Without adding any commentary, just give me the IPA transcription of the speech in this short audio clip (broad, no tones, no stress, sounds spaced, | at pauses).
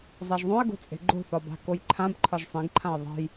zˤ a ʒ ðˤ õ ə̯ ɡ o̤ t͡sʼ e̤ ɡ͡ǃ o̤ θ ɒ b a̤ k o j ǃʰ ã b ǃʰ ɒ ʒ sˤ ẽ ɡ ǃʰ ã ə̯ ðˤ e̤ j